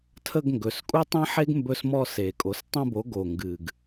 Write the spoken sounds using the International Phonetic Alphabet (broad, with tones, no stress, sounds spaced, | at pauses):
tʰ ə˦˨ ɡ ŋ ɡ ɵ˩˧ s kʼ u˦ tˤ ẽ˦ ħ e˦ ɡ m b ɵ˦˨ s m ɔ˦ s e˨˩ kʼ o˩˥ s tˤ õ˦ b o˩˥ ɡ o˨˩ ŋ ɡ ɨ˨˩ ɡ